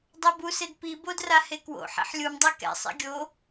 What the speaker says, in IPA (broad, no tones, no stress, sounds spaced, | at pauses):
dˤ a b u s e d p i b o d r a h e k w o̰ ħ ɛ̰ ħ lʲ u m dˤ ɛ k ɛ̰ sˤ ḭ ɡʲ o